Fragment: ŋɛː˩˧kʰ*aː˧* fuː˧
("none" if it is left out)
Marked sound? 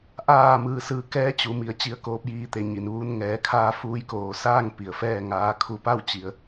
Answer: aː˧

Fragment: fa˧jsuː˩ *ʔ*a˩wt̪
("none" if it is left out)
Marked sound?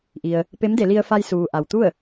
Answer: ʔ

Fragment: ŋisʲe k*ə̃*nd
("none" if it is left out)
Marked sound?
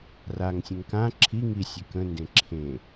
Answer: ə̃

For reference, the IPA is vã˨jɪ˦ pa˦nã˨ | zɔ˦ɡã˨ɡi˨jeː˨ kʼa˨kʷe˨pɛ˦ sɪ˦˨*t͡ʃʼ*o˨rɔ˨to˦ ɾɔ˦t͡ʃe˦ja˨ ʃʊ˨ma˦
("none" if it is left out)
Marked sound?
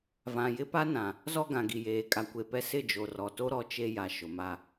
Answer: d͡ʒ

